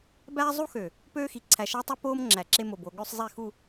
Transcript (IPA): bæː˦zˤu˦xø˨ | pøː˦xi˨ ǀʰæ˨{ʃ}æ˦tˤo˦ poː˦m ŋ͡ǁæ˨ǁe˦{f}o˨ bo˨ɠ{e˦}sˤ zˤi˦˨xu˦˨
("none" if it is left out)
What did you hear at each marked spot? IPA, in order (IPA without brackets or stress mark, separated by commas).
ʃ, m, ø˦